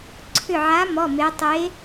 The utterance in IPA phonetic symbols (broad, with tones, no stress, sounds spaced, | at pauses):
ǀʰ ʏ˧˩ ʕ a˨˥ m ɔ˩˧˩ m e˩˧ tˤ e˨˥